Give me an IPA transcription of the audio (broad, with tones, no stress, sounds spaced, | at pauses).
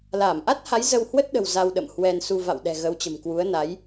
l aː˧˩ m ʔ a˦˥ t̚ h a˨˦ j z ə˧ w h w ə˦˥ t̚ ɗ ə̤˨˩ w z a˧ w ɗ ə̰˧˨ m h w ɛ˧ n s u˧ v a̰˧˨ w ɗ ɛ̤˨˩ ɣ ə˨˦ w t͡ɕ ə̤˨˩ m k w u˨˦ ə̯ n a˨˦ j